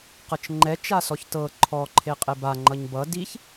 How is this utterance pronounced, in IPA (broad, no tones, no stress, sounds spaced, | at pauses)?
q ɤ t͡ʃ ŋ͡ǃ ɛ t͡ʃ a s ɔ ç t ɤ ǃʰ ɔ ǃʰ e qʼ e b a ŋ͡ǃ ʌ ɲ b ʌ d i ç